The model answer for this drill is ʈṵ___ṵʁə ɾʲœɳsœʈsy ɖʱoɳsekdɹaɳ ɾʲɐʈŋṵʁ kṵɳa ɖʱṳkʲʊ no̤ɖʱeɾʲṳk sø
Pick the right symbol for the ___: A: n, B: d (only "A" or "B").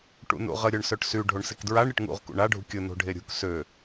A